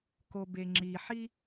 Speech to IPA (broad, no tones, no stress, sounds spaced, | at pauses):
k o b e ŋ͡ǁ i ħ i